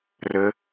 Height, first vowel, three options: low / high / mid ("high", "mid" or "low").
mid